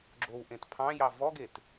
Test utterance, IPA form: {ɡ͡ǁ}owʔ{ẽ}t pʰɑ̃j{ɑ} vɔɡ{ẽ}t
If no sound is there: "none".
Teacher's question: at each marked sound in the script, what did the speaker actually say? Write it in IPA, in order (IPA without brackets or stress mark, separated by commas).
ɡ͡ǁ, ẽ, ɑ, e